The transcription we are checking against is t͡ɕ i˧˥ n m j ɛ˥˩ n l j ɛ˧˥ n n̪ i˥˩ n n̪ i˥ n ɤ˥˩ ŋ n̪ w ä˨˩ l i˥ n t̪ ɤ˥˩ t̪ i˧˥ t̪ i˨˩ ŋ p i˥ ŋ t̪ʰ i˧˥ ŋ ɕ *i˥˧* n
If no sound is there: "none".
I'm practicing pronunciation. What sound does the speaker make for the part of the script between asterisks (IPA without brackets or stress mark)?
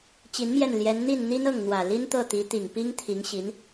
i˧˥